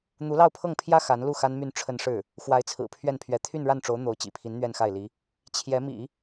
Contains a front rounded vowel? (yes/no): yes